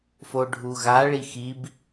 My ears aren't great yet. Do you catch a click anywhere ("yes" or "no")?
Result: no